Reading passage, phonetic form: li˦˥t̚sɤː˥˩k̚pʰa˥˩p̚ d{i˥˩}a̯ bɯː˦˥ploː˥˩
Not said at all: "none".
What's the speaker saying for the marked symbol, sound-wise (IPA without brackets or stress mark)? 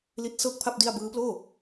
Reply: i˥˩